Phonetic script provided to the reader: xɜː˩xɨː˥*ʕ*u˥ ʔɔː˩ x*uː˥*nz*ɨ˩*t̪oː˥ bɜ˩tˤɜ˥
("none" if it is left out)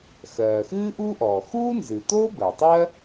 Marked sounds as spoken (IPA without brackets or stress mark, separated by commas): ʔ, uː˥, ɨ˩